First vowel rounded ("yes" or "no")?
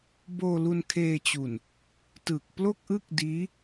yes